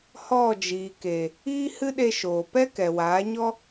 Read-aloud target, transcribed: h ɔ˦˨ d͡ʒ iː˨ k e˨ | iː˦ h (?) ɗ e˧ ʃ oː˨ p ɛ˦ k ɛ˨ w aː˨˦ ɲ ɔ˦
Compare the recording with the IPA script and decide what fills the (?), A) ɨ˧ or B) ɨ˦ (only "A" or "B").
B